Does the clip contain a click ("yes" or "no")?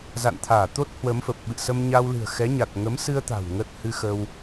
no